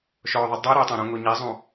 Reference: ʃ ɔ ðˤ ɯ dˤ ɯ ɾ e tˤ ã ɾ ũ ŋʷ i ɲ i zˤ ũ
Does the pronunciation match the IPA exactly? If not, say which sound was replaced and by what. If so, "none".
none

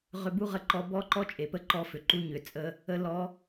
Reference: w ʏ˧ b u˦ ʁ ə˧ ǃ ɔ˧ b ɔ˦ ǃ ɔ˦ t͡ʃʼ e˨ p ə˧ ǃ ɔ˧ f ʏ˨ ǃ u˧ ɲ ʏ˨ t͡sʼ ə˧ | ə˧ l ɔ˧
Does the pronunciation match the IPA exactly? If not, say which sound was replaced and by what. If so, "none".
w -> ʁ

